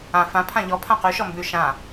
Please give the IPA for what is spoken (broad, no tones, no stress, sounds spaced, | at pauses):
ã f ã pʰ ã ʎ ɔ pʰ ã q ʉ ʃ ɔ m b ʉ ʃ ã